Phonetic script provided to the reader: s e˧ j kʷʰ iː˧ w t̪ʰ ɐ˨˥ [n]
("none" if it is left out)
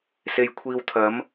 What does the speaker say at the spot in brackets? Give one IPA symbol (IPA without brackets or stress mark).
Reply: m